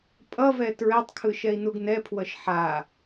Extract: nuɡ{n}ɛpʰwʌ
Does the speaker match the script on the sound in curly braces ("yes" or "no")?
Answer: yes